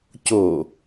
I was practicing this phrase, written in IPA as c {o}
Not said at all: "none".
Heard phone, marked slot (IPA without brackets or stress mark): o